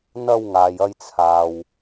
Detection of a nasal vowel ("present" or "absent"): absent